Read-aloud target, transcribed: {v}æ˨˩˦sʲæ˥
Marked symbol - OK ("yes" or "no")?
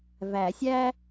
yes